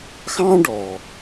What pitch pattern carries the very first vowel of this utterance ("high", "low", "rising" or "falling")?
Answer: high